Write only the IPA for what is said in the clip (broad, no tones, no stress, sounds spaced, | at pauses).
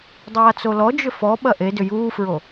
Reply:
dˤ aː t͡s o l ɔ d͡ʒ ʏ f ɔ ɓ ɐ ʔ e d ʏ j uː f ɹ o